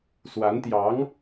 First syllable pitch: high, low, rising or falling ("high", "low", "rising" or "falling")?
rising